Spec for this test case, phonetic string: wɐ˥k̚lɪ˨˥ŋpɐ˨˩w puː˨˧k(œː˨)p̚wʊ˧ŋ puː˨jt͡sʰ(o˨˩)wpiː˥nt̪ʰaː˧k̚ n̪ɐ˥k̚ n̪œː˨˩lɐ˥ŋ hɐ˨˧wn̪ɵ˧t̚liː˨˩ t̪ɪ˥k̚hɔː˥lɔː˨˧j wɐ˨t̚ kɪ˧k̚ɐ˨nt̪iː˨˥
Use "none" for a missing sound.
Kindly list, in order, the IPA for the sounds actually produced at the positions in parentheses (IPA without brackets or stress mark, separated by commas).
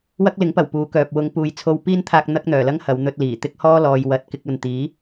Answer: œː˨, o˧